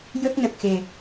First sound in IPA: j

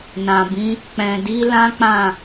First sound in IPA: n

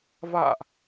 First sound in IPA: v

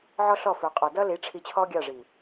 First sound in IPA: ʕ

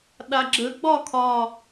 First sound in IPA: ɗ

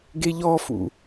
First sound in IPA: ɡ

